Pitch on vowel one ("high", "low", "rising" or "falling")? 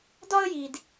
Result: high